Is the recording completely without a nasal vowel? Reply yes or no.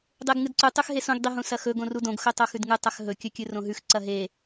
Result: no